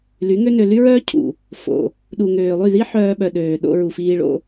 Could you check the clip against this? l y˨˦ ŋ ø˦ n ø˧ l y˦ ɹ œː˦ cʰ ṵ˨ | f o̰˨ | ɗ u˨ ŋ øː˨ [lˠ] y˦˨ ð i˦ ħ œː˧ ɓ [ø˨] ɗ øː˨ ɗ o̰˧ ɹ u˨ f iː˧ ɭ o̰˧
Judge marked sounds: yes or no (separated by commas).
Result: yes, no